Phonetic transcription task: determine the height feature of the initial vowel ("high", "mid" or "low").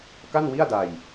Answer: low